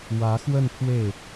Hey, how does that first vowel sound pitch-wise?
rising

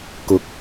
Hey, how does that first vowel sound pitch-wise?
rising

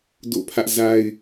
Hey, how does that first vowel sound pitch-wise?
falling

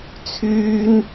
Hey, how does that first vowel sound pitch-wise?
high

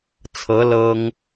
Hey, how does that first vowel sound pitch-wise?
rising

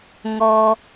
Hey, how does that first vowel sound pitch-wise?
low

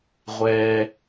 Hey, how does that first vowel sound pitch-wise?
low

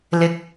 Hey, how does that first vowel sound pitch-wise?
rising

